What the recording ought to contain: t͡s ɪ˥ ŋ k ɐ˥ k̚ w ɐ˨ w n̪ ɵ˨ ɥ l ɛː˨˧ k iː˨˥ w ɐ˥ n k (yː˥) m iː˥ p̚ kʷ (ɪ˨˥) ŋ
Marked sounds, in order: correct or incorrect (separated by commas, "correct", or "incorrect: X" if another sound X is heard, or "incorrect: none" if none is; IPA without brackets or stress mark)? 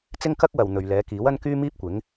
correct, correct